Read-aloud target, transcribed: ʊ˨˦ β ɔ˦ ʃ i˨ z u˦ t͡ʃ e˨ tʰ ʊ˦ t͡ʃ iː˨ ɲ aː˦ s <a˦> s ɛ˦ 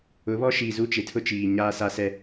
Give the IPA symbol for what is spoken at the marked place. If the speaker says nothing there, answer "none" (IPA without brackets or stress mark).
a˦